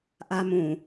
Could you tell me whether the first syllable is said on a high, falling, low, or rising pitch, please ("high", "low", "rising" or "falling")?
high